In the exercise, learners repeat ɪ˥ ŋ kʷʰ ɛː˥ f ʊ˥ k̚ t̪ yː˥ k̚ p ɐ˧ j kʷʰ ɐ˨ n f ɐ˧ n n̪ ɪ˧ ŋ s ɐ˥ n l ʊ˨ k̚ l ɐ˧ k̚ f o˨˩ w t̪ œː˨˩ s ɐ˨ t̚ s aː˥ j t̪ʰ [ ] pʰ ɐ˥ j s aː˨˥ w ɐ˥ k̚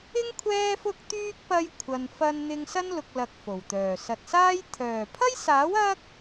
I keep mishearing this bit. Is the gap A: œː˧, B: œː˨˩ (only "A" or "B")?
B